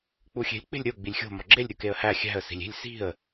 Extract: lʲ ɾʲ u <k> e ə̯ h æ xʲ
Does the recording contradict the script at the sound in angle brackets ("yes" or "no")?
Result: no